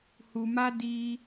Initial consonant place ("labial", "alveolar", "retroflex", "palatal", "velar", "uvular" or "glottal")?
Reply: glottal